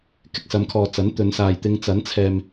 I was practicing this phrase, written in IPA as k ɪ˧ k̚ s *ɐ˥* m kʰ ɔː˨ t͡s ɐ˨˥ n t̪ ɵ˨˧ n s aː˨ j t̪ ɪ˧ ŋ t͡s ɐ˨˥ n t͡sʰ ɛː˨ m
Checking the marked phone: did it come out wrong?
yes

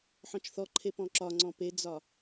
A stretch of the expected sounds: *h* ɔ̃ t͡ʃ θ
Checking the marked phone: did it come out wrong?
yes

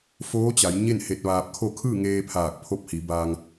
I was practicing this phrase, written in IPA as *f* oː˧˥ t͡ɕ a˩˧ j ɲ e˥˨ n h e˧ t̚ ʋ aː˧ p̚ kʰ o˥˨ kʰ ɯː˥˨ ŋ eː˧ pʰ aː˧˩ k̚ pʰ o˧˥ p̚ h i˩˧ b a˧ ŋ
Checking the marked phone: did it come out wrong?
no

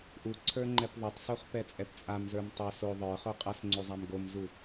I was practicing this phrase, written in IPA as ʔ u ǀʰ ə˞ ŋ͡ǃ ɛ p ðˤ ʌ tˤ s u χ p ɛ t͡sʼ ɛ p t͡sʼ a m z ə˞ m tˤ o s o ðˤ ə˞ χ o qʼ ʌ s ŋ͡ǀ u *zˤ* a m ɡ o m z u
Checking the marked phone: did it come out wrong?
no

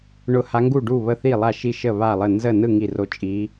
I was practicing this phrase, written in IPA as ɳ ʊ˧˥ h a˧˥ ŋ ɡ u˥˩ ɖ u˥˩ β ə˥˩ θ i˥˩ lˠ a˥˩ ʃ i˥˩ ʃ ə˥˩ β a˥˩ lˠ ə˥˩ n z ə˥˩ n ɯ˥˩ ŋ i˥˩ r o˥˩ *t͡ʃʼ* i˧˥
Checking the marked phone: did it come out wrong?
no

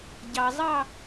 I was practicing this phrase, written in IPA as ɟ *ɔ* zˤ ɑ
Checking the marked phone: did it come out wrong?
yes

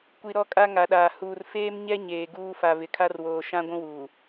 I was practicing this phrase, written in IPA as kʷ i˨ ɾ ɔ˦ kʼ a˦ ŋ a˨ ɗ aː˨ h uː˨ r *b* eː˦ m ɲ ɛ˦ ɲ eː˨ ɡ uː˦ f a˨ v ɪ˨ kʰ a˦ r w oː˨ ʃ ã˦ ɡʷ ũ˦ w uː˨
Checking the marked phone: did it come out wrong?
yes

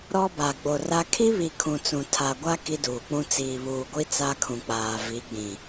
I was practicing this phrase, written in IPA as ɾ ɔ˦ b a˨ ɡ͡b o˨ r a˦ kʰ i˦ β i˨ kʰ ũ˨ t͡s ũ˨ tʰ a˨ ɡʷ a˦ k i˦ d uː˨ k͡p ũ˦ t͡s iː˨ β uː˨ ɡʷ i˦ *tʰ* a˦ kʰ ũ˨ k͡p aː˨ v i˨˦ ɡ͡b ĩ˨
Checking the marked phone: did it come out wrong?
yes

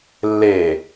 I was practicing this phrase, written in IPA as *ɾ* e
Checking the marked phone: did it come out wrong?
yes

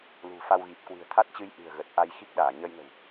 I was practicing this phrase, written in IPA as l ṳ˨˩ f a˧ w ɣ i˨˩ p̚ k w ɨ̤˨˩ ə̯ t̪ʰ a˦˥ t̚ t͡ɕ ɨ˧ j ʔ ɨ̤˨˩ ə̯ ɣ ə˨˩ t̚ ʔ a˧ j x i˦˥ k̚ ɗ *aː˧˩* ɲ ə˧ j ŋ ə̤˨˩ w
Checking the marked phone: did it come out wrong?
no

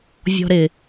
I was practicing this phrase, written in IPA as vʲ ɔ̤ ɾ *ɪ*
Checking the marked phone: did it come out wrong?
no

